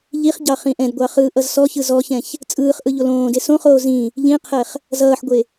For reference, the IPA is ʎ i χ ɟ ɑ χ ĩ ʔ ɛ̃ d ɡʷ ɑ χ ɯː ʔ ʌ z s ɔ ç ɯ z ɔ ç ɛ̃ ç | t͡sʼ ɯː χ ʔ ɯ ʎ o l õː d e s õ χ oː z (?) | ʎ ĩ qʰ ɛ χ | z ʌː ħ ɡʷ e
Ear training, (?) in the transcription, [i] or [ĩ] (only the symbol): ĩ